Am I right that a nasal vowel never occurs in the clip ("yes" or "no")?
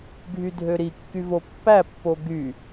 yes